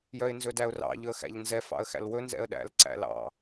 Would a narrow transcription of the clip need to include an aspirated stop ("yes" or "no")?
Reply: no